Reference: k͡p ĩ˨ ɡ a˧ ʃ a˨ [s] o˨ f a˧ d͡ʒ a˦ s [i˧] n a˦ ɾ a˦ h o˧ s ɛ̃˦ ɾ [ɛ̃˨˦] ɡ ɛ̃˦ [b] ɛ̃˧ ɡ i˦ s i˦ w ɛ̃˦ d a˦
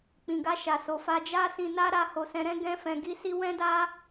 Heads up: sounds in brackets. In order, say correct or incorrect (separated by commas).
correct, incorrect, incorrect, incorrect